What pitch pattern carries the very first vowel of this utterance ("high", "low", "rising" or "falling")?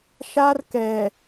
high